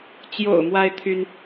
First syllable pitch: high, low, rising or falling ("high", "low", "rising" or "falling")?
low